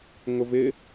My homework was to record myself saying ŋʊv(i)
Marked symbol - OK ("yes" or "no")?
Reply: no